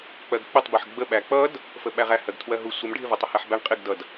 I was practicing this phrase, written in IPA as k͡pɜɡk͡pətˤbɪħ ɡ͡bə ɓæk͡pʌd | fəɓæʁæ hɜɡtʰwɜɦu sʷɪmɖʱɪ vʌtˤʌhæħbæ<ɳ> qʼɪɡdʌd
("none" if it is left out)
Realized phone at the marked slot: ɳ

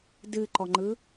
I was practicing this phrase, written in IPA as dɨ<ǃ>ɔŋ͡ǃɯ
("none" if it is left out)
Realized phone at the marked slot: ǃ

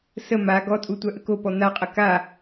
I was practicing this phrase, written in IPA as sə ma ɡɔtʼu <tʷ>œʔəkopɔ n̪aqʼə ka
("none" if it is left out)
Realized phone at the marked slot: tʷ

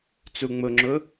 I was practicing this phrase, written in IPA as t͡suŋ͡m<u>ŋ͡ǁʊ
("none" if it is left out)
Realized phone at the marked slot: ʊ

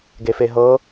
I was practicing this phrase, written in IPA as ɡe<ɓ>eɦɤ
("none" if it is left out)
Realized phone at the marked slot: f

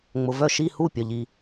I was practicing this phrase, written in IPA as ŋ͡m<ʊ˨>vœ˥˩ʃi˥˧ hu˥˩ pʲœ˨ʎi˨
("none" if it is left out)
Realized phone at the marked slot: ʊ˨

